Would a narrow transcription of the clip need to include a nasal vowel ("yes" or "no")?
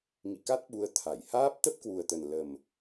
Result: no